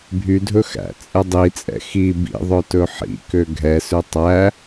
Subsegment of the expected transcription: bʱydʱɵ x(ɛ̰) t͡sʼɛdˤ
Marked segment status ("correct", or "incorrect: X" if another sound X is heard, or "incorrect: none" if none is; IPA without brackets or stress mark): incorrect: æ̰